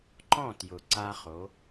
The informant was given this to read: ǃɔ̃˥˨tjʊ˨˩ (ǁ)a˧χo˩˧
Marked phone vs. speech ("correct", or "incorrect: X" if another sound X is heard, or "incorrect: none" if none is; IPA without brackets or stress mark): incorrect: ǀ